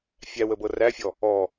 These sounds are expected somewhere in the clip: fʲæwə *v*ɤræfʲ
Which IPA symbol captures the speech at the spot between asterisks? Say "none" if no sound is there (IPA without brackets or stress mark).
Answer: b